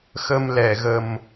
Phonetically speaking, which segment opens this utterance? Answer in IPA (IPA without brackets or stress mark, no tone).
x